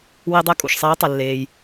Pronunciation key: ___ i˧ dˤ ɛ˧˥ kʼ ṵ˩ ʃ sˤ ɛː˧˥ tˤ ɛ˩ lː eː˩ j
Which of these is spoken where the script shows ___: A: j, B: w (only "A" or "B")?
B